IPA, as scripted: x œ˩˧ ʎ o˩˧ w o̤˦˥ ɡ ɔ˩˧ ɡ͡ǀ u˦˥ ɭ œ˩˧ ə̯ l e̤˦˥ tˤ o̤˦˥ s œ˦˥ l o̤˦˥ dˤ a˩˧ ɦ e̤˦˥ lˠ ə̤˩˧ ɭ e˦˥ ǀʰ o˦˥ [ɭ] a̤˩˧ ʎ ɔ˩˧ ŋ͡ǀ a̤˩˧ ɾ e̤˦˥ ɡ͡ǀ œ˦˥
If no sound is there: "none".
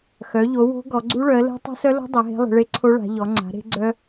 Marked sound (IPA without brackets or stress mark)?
ɭ